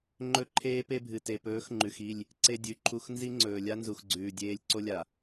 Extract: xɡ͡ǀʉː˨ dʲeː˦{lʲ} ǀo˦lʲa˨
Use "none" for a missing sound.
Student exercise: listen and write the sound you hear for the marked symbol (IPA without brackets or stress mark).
lʲ